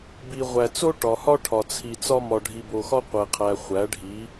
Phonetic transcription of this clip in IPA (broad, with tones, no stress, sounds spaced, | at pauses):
b i˨ ʁʷ æ˨ t͡s o˦ ʈ ɒ˨ h ɒ˦ ʈʰ ɒ˨ t͡sʰ i˨ t͡s ɒ˦ m ɒ˨ ɖʱ i˨ b o˨ x ɒ˦ qʷ e˨ qʰ æ˨ χʷ æ˨˦ ɖʱ i˨˦